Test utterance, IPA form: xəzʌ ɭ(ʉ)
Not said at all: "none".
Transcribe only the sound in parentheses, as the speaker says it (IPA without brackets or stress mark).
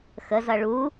u